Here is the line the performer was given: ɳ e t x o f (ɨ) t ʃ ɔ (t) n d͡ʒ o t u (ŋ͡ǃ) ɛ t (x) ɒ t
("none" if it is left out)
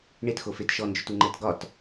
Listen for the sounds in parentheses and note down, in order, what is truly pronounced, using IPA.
e, none, ŋ͡ǃ, ɡ

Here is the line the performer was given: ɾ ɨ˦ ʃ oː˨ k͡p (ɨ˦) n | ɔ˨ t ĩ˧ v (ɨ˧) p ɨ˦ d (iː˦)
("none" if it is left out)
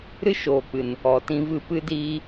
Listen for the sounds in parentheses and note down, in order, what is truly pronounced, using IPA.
ɨ˨, ɨ˧, iː˦

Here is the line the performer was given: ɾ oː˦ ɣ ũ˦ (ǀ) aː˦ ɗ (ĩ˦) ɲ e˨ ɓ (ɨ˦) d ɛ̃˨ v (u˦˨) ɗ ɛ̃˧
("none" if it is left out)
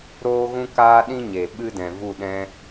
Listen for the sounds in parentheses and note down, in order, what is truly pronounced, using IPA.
k, ĩ˦, ɨ˦, u˦˨

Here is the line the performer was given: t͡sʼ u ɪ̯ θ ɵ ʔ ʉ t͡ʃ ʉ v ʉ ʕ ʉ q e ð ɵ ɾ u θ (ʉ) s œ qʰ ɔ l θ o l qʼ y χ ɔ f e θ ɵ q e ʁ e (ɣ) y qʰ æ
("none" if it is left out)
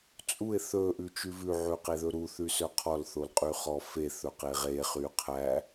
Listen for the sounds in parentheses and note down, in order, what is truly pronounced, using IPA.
ʉ, χ

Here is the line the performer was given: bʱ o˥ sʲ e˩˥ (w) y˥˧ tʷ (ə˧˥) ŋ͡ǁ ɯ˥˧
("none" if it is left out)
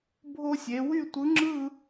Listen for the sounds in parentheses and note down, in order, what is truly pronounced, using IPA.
w, ɯ˧˥

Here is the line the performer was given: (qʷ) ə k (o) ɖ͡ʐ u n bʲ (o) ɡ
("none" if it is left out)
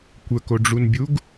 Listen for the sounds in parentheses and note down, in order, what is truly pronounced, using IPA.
kʷ, o, u

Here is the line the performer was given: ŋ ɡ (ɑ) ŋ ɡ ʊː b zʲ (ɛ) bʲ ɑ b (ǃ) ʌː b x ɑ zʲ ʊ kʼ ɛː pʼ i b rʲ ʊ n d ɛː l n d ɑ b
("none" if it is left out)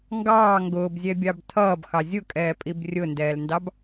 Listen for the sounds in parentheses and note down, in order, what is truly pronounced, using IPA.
ɑː, ɛ, tʰ

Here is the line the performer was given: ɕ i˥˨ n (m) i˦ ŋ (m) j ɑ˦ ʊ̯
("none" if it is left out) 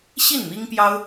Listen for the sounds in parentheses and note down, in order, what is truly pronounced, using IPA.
m, p

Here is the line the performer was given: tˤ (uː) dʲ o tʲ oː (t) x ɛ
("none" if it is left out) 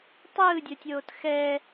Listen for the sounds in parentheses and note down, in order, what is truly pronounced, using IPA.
ɯː, t

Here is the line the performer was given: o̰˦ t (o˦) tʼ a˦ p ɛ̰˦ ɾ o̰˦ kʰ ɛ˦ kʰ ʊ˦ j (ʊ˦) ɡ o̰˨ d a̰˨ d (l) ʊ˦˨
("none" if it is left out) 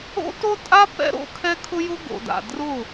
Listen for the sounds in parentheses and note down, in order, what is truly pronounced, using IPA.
o˦, ʊ˦, r

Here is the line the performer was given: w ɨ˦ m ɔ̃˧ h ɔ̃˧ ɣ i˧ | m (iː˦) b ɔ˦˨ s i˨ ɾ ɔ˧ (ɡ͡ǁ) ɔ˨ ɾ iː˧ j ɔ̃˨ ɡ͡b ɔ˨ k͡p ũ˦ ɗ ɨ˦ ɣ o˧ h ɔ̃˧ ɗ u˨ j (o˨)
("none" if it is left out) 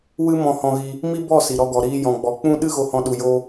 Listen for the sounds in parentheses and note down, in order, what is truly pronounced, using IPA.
i˦, ɡ, o˧

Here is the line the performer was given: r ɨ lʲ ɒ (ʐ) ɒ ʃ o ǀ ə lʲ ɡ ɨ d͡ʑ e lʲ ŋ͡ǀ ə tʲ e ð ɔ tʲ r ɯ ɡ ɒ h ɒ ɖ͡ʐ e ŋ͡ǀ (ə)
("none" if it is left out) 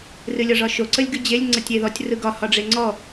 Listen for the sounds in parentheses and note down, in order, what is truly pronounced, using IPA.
ʐ, ɔ

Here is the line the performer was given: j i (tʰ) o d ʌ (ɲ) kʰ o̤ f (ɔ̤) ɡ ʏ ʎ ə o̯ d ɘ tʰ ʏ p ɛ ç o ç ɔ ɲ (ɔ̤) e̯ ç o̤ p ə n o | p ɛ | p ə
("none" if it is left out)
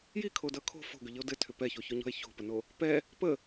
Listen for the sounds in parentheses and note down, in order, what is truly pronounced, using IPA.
kʰ, none, o̤, ɔ̤

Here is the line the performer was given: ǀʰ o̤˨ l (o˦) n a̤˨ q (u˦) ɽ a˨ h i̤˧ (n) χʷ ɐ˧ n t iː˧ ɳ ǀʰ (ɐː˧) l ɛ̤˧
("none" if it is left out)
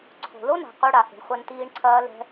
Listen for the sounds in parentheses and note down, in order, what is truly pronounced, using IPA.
o˦, u˦, ɳ, ɐː˧

